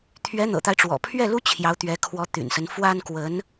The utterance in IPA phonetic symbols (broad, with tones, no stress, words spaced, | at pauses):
t̪ʰɥɛ˧˥n̪ɤ̰˨˩t̪a˦ɪ̯ʈ͡ʂwɔ̰˨˩ pʰɥɛ˥˩lu˥ t͡ɕʰjɑ˧˥ʊ̯t̪ɥɛ˧˥kʰwɔ˧˥ t̪y̰˨˩nsə˦n fwa˥nkwə˧˥n